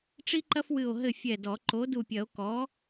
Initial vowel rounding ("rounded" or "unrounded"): unrounded